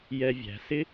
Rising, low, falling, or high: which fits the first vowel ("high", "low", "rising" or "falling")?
high